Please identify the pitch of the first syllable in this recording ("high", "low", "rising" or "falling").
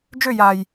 falling